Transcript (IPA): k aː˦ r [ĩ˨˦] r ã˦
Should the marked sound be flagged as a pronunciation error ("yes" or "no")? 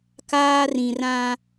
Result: yes